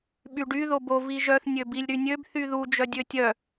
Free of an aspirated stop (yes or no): yes